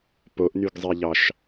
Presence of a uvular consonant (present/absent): absent